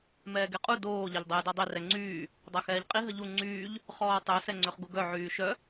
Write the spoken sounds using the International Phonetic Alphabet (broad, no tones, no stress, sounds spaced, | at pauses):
m ɛː ɡ e qʼ u d oː ʎ a ʎ dˤ ɛː d ɔ dˤ e r ɛ ŋ͡ǀ yː | dˤ a x ɛː ʎ qʼ i ɦ ə ʎ u ŋ͡ǀ yː ʎ | χ ɔː tˤ œ s ɛ ŋ͡ǀ ø χ ɡ u ɡ œ ʕ yː ʃ œ